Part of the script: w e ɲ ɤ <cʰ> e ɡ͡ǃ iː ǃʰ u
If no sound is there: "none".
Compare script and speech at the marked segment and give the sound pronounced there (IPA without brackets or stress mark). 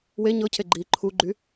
cʰ